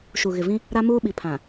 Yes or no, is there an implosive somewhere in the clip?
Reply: yes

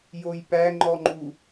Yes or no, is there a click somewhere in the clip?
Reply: yes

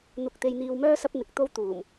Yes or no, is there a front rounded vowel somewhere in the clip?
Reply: yes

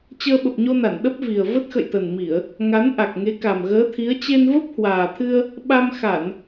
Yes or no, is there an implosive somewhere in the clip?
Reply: yes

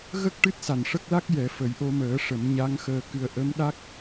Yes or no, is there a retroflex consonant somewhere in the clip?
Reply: yes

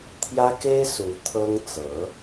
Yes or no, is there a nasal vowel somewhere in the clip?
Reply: no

